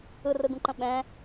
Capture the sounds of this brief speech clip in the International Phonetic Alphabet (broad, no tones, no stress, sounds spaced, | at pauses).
ɯ r ɯ ɡ ũ ǃ ə̃ ɓ ɛ̃